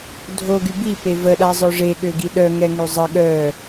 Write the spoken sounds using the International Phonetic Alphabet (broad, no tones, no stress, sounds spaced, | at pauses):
dʱ o ɡ y b i p e v ə ɗ a zˤ œ ʐ e ɠ ø ɡ i ɗ œ ŋ ɛ ŋ ø zˤ ə ɠ œ